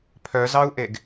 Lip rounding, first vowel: rounded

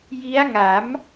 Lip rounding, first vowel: unrounded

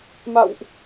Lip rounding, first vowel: unrounded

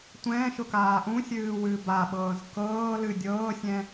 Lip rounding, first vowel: unrounded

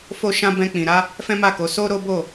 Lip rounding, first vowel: rounded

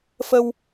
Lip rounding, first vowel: unrounded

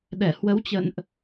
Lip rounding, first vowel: unrounded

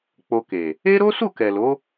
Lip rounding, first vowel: rounded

